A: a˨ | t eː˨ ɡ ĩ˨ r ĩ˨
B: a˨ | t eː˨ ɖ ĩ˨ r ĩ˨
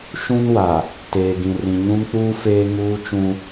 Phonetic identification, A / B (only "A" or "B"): A